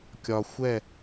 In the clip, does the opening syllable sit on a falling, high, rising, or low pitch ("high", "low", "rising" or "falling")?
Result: low